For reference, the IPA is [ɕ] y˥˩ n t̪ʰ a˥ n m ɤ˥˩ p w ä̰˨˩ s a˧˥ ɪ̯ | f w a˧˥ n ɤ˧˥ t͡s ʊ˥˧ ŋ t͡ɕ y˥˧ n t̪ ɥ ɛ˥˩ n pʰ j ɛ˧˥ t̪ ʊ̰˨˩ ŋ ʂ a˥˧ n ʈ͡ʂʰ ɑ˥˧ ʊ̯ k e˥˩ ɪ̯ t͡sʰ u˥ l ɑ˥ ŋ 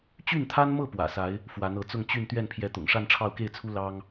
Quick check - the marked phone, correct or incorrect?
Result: incorrect